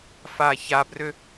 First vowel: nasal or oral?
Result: oral